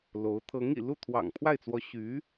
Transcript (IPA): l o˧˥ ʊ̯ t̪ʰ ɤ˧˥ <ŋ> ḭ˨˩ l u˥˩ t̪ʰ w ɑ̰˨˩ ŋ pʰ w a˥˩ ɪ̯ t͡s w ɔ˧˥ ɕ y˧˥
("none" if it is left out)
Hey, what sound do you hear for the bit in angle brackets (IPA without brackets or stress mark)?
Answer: ŋ